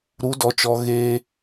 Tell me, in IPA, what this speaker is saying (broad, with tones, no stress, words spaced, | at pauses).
ɾu˨˦dɔ˨t͡ʃɔ˨ ɣe˧